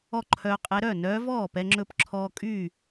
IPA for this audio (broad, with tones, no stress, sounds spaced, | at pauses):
ɔ˥˩ ǃʰ œː˧ qʼ ɛ˧˥ ɾ œ˥˩ n œː˧˥ v ɔː˥˩ p ɛ˧ ŋ͡ǁ ɵ˧ p ǁʰ ɔː˧ kʼ yː˥˩